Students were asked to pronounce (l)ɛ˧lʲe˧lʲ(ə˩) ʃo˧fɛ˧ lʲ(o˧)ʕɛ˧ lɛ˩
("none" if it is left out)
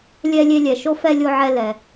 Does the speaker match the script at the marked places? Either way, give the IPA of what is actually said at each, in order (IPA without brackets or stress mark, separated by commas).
lʲ, ɛ˩, o˧